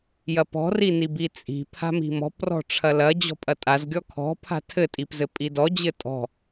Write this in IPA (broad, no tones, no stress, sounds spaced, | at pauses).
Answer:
j ɐ p ɔ̤ r i n i b i t͡sʼ i̤ pʰ a̤ m i̤ m ɔ̤ p r ɔ̤ ʈ͡ʂʰ ɐ l ɐ d͡ʑ ɔ̤ pʼ ɐ tʼ a z ɡʲ ɔ kʰ ɔ̤ pʰ a̤ tʰ ɘ tʼ i p z ɘ pʼ i d ɔ d͡ʑ ɘ tʼ ɔ̤